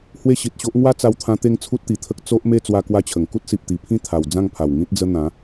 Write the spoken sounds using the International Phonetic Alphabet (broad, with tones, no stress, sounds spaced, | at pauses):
h w e˦ ɕ i˨ t̚ ɕ o˦ ʔ ŋ w a˦ t͡s a˧ w t̪ʰ ã˧ t̪ e˥˧ ŋ t͡sʰ u˦ t̚ t̪ i˨˩ t̪ʰ ə˦ k̚ t͡s o˦ ʔ m e˥˧ t͡s w a˦ k w a˥˧ t͡ɕʰ ə˨˩ ŋ k u˦ t̚ s i˨ p̚ t̪ i˨˩ pʰ ĩ˥˧ t̪ʰ a˨˩ w d͡z ã˥˧ ŋ pʰ a˨˩ w ŋ ĩ˦ t̚ d͡z ə˦ n̪ ã˨˦